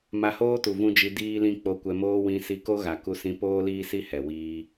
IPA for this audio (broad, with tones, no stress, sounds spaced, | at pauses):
m a˧ h oː˦ t u˨ v ũ˦ d͡ʒ i˧ d iː˦ l ĩ˦ k͡p o˧ kʷ ɛ˧ m oː˦ w ĩ˧ s i˧ k o˦ ɣ a˨ k u˧ s ĩ˧ p oː˦ l iː˦ s i˦ h ɛ˨ w iː˧